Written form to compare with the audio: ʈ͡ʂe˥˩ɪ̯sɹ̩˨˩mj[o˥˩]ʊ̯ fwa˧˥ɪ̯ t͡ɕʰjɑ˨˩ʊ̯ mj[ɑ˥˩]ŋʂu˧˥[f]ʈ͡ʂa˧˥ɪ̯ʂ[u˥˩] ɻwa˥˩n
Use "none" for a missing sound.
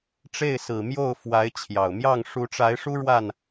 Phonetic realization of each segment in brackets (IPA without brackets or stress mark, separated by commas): o˥˩, ɑ˥˩, none, u˥